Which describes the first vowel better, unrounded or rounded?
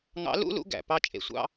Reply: unrounded